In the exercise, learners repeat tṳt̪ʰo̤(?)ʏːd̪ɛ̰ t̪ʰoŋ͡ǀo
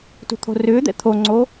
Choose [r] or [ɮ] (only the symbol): r